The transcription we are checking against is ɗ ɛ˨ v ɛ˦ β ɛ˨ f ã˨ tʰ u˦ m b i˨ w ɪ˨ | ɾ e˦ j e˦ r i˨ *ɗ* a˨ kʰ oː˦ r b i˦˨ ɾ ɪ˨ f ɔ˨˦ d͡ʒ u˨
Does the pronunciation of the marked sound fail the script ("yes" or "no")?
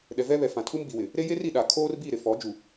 no